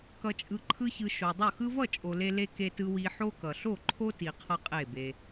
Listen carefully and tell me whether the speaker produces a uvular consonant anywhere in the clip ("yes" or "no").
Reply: yes